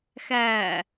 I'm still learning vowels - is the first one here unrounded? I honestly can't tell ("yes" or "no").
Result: yes